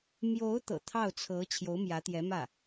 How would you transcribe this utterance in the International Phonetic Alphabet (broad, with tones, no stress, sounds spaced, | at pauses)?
m j o˧˥ ʊ̯ t̪ ɤ̰˨˩ t̪ʰ ɑ˥˩ ʊ̯ t͡sʰ ɤ˧˥ t͡ɕʰ j o˧˥ ʊ̯ m j ä˧˥ t̪ j ɛ˧˥ m ä˥˩